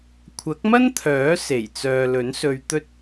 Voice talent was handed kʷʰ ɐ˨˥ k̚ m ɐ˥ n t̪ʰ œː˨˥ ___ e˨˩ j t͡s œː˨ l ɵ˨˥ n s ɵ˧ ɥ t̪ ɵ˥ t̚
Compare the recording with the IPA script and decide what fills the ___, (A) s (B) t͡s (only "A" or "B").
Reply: A